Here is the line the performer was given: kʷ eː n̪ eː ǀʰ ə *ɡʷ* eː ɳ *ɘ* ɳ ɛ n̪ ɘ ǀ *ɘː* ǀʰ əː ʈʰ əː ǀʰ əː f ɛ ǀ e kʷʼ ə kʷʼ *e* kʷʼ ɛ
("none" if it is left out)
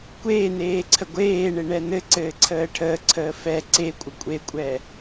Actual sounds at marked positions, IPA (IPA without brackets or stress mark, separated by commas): ɡʷ, e, ɘː, e